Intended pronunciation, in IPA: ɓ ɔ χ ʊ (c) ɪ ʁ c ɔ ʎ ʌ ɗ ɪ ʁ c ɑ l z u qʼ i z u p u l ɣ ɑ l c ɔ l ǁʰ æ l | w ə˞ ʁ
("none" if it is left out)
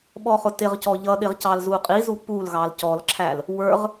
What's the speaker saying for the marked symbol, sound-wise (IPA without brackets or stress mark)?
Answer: t